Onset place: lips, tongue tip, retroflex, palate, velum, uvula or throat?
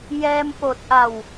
palate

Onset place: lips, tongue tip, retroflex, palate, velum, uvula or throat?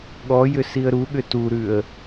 velum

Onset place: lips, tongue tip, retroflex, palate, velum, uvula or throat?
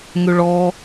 velum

